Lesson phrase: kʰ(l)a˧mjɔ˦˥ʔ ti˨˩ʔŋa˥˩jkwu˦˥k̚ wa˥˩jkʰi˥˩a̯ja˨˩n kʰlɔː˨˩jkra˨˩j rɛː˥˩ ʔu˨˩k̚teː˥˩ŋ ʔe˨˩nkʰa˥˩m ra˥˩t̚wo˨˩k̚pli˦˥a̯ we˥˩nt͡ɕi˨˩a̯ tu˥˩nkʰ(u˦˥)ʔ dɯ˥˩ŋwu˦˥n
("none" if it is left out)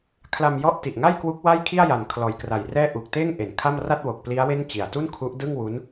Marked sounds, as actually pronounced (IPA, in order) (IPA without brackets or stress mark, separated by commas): l, u˦˥